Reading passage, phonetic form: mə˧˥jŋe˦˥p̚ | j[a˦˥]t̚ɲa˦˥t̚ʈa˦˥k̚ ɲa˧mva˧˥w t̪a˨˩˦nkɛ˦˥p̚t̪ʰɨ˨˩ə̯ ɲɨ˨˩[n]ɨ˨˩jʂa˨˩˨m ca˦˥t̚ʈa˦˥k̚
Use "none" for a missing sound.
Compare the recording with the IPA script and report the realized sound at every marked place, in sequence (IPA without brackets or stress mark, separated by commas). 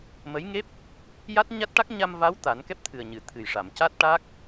a˦˥, t̪ʰ